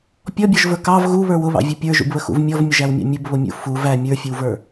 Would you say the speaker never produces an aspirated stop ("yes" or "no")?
yes